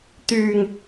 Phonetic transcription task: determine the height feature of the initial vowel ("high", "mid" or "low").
high